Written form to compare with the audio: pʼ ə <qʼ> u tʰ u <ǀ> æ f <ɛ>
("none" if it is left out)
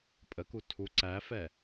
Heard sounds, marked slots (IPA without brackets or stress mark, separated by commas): k, ǀ, ɛ